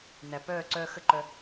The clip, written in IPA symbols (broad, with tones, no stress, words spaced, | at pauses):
næ˨pœː˦˨ ǀœː˧xə˦˨ǃœ˧